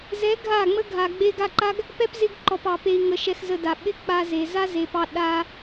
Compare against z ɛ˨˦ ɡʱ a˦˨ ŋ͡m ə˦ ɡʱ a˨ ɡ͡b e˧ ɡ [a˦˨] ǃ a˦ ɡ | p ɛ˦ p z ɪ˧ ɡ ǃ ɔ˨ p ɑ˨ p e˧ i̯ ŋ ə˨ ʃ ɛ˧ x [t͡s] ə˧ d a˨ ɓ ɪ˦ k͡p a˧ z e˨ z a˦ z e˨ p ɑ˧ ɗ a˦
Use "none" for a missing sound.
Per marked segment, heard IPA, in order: a˦˨, z

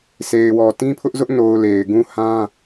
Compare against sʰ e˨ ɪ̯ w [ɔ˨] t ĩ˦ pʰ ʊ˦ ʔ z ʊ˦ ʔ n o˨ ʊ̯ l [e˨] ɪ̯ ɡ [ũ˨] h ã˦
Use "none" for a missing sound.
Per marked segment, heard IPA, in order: ɔ˨, e˨, ũ˦

